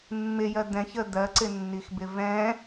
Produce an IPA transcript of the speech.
mːɪjɜ d̪ɛ̃çə d̪ɜǀɪnːixbɪ vɛ̃

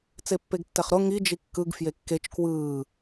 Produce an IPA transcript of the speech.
t͡sepːeɡtːɛχɾo ŋi d͡ʒikːɯɡ fjekːet͡ʃ kwɯː

